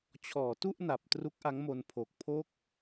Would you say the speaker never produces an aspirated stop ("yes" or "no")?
no